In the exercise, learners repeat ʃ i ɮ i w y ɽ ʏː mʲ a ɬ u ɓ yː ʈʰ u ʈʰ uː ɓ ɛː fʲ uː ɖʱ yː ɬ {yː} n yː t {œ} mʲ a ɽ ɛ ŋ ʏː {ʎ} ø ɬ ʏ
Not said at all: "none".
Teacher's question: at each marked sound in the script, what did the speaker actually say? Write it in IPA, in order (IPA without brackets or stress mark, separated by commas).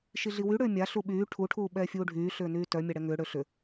ʏː, œ, ɽ